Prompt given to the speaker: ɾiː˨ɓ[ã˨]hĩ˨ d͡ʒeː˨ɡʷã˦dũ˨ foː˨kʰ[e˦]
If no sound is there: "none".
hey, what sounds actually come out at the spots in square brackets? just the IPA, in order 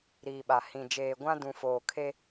a˨, e˦

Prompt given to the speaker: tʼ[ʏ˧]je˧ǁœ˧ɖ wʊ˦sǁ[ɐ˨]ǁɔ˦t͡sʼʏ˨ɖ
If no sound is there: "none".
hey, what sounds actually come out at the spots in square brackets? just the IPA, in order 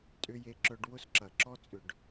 ʏ˧, ɐ˨

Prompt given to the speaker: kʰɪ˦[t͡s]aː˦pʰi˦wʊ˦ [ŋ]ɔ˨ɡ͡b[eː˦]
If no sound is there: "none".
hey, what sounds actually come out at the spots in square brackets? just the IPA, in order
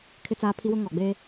t͡s, ŋ, eː˦

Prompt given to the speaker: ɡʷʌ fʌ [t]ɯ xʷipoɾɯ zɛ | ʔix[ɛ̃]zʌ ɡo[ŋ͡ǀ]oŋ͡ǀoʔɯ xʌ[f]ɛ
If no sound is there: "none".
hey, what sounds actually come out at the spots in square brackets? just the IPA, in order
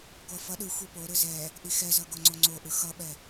ɗ, ɛ, ŋ͡ǀ, ɓ

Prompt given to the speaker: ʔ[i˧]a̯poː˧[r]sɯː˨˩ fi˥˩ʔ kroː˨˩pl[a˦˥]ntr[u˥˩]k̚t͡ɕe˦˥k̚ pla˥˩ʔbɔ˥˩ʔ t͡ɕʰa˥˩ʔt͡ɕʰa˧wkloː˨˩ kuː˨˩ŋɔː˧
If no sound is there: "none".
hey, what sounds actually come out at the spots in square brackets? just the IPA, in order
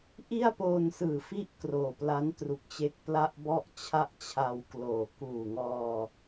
i˥˩, n, a˦˥, u˨˩

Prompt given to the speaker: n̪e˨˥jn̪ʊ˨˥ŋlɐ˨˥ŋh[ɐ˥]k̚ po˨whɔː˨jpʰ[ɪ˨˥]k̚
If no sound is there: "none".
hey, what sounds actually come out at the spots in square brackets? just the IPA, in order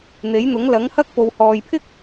ɐ˥, ɪ˥

